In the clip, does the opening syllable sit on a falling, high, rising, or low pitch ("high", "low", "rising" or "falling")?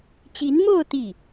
rising